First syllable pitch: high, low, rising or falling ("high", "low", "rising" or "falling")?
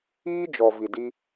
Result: high